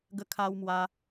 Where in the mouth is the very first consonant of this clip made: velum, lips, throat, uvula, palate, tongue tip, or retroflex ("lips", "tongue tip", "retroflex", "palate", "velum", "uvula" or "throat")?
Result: velum